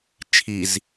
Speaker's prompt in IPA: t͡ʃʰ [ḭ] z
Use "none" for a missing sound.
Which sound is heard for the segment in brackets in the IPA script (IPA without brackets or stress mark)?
i